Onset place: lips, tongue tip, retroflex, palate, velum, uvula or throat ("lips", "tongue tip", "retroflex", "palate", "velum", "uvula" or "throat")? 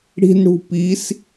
retroflex